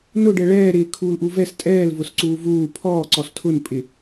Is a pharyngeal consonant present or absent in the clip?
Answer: absent